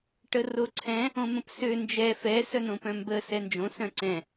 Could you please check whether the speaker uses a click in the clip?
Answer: yes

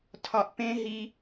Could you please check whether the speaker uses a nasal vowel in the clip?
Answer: yes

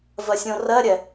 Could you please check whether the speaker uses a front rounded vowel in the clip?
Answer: no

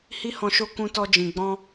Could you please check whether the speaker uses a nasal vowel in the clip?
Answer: yes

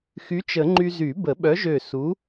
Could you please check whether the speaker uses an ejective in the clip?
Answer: no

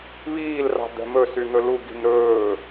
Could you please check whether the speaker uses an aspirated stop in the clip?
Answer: no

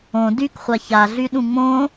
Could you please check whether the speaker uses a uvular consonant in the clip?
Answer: yes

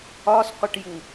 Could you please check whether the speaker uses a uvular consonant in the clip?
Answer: yes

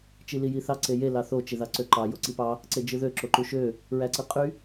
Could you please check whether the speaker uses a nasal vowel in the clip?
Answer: no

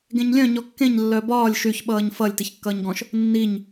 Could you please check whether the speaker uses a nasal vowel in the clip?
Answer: yes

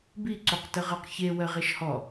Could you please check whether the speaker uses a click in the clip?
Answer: yes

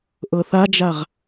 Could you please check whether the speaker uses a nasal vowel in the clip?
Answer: no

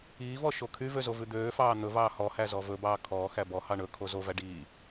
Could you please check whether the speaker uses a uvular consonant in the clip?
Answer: no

